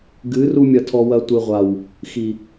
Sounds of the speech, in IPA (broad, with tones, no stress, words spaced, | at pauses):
ɡɨ˨˦ru˧ mʲɐ˧tʰɔ˧wɐ˧ tʷɨ˨ ʁʷa˨w | xi˨